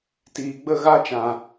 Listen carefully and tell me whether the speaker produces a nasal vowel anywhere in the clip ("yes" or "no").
yes